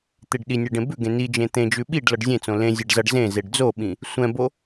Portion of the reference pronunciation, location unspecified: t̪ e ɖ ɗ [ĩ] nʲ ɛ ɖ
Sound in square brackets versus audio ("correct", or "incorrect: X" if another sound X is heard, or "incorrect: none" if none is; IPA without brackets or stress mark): incorrect: i